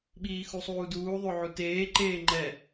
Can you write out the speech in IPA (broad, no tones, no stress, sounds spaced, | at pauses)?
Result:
ɓ iː x u sˤ uː d uː ðˤ o ʕ u t eː ǃ eː ŋ͡ǃ ɛ